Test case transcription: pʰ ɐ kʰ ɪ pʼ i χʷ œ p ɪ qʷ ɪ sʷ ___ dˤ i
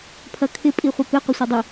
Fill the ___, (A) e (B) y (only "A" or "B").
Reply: A